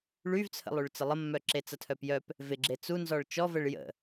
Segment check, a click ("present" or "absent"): present